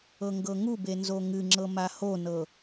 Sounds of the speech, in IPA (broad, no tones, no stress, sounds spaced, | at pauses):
ɤ ŋ ɡ ɤ ŋ u b e n z o ŋ ɨ ŋ͡ǁ ɤ m a h o n ɤ